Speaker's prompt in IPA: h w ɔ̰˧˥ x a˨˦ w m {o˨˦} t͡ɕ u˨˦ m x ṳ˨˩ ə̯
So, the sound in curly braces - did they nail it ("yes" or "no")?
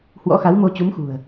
no